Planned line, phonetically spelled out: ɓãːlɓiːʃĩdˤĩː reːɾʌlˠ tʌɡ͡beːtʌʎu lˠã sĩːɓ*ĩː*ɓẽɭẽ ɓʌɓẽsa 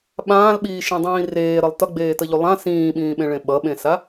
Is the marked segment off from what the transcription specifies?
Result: no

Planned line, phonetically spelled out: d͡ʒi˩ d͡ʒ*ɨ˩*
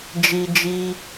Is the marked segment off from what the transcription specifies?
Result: yes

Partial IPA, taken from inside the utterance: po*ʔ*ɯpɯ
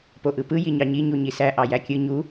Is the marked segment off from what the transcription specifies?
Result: no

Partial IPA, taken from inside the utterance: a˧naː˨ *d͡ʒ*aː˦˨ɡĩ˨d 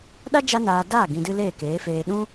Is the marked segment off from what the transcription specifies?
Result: yes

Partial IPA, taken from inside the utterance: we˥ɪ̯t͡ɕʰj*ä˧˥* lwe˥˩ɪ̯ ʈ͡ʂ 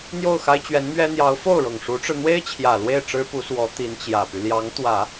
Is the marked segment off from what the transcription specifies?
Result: yes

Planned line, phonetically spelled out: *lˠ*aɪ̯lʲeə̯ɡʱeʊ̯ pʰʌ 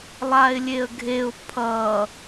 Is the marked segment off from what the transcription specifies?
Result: no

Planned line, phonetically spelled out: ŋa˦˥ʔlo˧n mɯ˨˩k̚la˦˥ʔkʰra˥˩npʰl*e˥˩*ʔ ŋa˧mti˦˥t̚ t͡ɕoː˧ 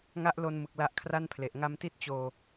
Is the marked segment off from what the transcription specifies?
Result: yes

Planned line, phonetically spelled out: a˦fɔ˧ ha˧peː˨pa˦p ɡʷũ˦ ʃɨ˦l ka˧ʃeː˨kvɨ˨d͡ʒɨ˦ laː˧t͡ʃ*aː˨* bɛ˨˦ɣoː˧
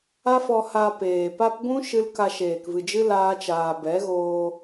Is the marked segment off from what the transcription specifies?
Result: no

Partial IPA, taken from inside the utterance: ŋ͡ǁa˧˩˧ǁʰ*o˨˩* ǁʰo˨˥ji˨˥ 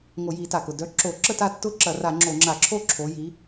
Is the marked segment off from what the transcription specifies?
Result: yes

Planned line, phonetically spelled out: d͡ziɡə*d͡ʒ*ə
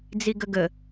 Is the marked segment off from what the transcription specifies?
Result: yes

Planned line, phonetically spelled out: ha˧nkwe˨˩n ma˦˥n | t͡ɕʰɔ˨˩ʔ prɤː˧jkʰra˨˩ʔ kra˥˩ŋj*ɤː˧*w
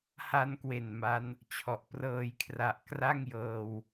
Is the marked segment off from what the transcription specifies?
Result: no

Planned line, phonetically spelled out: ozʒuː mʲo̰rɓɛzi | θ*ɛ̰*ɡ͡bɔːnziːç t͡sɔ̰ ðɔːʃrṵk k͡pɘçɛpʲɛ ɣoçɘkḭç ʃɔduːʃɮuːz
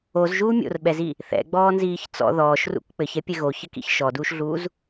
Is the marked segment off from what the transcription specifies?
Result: no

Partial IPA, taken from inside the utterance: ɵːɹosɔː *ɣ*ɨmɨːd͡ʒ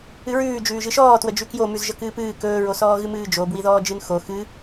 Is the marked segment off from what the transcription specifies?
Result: no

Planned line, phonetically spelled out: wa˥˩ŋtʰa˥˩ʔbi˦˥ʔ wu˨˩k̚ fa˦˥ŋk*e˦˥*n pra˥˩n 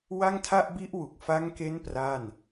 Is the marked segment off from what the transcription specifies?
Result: no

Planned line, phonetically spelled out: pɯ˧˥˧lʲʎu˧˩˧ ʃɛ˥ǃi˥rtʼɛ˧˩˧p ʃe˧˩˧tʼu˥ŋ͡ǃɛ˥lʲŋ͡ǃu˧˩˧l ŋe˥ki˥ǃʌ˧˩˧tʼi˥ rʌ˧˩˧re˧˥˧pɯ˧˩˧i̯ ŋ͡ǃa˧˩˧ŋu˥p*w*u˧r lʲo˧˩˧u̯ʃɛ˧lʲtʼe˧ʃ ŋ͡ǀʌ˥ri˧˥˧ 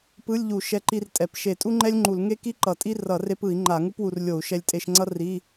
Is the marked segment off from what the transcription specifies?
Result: no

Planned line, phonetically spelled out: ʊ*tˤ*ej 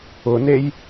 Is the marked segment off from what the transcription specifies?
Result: yes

